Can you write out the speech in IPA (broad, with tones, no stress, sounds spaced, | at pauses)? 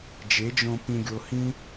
d͡ʒ e˨˦ d͡ʒ õ˧ p ĩ˧ ɡʲ o˧ h ĩ˦